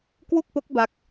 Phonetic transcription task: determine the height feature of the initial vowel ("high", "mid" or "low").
high